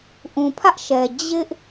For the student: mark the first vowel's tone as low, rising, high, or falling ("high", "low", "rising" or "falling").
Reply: low